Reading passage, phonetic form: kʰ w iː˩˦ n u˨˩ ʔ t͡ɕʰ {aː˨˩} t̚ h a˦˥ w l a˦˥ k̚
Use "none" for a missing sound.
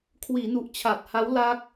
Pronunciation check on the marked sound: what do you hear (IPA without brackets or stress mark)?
a˨˩